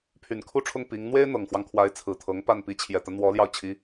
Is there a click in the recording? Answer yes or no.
no